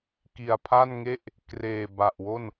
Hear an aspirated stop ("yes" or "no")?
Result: yes